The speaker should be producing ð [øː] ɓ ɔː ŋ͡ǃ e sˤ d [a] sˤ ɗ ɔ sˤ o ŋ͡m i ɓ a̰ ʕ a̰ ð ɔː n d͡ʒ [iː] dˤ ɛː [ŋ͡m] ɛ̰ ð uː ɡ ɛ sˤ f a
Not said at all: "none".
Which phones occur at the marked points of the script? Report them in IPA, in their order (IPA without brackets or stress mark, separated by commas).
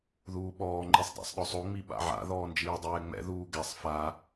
uː, a̰, iː, ŋ͡m